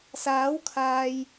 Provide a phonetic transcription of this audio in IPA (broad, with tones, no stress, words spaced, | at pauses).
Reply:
saː˨˥wkʰaː˨j